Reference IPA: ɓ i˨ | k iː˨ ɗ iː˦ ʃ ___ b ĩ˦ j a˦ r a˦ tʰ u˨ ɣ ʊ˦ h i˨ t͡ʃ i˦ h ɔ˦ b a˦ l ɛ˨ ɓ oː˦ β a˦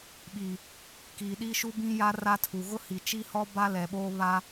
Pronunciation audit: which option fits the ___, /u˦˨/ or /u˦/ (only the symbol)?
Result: u˦